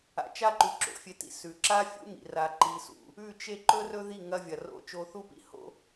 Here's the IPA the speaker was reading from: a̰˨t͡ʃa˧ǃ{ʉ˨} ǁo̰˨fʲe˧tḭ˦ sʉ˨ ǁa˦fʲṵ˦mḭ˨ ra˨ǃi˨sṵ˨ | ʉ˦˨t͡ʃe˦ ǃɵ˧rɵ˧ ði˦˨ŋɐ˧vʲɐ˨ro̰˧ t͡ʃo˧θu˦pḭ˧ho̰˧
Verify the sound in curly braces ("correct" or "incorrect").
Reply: correct